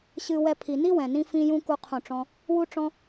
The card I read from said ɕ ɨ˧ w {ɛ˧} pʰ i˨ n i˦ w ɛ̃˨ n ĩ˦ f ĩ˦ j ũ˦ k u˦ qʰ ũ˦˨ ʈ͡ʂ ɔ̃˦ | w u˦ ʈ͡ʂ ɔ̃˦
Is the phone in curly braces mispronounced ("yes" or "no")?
no